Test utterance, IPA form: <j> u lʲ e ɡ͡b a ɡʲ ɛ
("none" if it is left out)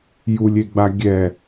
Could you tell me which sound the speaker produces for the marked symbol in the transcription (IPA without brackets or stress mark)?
j